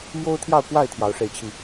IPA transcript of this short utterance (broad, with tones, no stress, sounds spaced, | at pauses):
m j o˦ ʊ̯ t̪ʰ j ɑ˥˨ ʊ̯ k w a˥˨ ɪ̯ t̪ʰ j ɑ˨˦ ʊ̯ ʂ e˥˨ ɪ̯ t͡ɕʰ i˥˨